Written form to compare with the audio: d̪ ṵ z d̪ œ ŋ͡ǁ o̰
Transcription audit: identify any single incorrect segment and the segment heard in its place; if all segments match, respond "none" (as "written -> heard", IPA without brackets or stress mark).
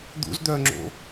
none